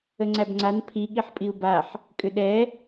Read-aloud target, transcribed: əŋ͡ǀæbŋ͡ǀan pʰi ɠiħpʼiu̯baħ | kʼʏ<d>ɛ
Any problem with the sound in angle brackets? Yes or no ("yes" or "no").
yes